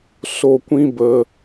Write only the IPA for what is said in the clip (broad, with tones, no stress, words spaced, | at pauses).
so˧kʷĩ˦bə˧